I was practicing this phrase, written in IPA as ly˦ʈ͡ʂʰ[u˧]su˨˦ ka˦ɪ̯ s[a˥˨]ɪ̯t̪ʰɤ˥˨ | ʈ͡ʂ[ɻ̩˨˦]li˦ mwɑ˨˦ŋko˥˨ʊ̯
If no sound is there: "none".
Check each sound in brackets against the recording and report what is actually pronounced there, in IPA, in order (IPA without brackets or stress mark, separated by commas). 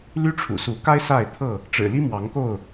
ṵ˨˩, a˥˨, ɻ̩˨˩